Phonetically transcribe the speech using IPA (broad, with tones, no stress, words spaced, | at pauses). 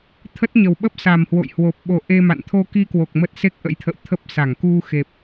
t̪ʰə˦˥t̚ɲə˨˩w ɓə˦˥p̚sa˨˩mhwo̰˧˨jhwo˨˩p̚ ɓo˧ ʔe˧ma̰˧˨n t̪ʰo˧ki˧kwo˨˩k̚ mə˦˥t̚ se˦˥k̚ ʔə̰˧˥jt̪ʰə̰˧˨w t̪ʰə˦˥p̚sa˧˩ŋ ku˧xe˨˩p̚